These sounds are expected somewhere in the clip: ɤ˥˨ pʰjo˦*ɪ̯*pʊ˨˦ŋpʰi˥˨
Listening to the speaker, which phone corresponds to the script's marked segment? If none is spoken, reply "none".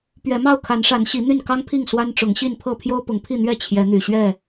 ʊ̯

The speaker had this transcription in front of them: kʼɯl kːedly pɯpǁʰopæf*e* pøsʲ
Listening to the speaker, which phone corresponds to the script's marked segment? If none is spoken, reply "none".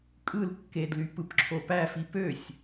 i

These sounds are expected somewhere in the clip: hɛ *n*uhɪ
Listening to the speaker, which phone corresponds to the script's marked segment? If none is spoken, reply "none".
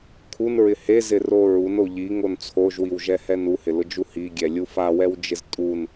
n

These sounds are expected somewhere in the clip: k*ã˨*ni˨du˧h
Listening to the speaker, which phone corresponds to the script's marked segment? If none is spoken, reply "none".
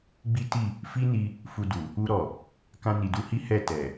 ã˧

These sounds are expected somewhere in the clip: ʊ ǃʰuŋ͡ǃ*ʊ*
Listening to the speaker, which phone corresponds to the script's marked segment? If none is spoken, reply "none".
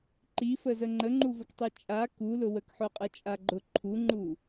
u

